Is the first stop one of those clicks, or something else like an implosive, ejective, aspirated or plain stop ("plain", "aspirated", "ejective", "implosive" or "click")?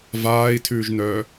aspirated